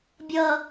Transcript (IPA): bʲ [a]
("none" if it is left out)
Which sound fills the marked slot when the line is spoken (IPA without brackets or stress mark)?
ʌ